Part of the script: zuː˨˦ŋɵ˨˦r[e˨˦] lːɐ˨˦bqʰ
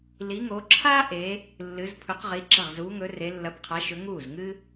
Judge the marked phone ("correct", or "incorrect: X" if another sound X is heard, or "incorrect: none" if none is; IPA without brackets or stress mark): correct